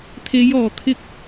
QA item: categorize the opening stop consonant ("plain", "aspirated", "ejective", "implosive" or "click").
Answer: aspirated